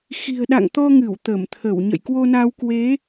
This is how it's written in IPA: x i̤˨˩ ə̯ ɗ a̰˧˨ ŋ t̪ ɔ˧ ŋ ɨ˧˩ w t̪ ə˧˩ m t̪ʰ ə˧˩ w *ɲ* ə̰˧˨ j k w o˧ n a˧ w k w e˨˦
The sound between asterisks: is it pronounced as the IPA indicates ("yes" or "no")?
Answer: yes